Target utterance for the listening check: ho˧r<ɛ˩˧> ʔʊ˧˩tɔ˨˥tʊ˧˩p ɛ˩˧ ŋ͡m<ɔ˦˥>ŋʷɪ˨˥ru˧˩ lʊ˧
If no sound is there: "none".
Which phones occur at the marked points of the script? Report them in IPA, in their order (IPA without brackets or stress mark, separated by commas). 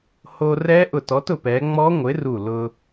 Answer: ɛ˦˥, ɔ˦˥